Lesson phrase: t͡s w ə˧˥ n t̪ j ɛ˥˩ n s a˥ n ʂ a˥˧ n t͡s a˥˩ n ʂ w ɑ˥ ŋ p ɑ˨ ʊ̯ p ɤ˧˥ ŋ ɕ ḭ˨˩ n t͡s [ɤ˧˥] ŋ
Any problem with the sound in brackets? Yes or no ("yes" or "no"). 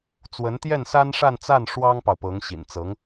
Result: no